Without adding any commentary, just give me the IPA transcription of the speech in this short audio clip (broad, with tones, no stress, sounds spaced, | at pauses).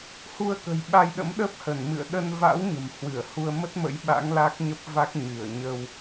h u˧ ə̯ k ə̤˨˩ j ɓ a˧ j ɗ ə̰˧˥ m ɗ əː˦˥ p̚ h ə˧˩ n m ɨ̰˧˨ ə̯ ɗ ə˧ n v a̰˧˥ w ɲ ə̤˨˩ m h w ɨ˧˩ ə̯ h u˧ ə̯ m ə˦˥ t̚ m ə̰˧˥ j ɓ a̰˧˥ ŋ l a˦˥ k̚ ɲ ə˦˥ p̚ v a˦˥ k̚ ɲ ɨ˧˩ ə̯ ɲ ə˧ w